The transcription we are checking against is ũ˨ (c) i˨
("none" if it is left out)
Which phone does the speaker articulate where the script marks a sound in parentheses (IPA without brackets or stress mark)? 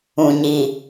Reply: ɲ